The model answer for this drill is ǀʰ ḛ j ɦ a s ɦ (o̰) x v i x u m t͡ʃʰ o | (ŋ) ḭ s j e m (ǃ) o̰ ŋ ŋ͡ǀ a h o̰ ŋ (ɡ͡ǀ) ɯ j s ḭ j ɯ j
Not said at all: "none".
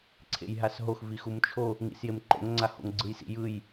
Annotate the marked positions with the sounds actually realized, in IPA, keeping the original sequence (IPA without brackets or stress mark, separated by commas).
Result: o, ŋ, ǃ, ɡ͡ǀ